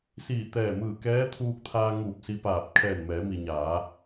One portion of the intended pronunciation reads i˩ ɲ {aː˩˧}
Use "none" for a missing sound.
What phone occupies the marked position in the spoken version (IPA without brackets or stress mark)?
aː˩˧